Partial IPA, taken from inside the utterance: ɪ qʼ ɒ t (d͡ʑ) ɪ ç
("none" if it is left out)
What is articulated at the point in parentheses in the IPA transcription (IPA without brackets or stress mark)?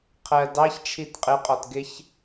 ɡ